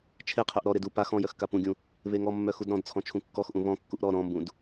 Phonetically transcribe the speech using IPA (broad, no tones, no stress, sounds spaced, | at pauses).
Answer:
t͡ʃʰ e qʰ œ ʔ ɾ ɔ ɾ e d u p a x ɔ̃ j œ x k a p ũ ɡʲ ũ | β e ŋ ɔ mː œ x u d ɾ ɔ̃ d t͡sʰ ɔ̃ t͡ʃʰ ũ kː ɔ x ʔ ũ β ɔ̃ kː u ʔ ɾ ɔ ɾ ɔ̃ m b ũ d